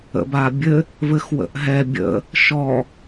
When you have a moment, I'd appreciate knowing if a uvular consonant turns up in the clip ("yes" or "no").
no